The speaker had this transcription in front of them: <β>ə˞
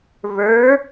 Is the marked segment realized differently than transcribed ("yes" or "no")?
no